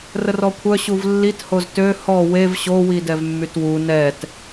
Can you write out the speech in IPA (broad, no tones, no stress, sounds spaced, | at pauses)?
r ə r ɔ kʷʰ œ ɕ u v lː i t h o z t ø h ɔ w e v ɕ o w i d ɛ v mː y t w u n ɛ t